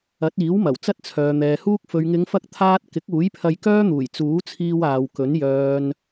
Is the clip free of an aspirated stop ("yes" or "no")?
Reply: no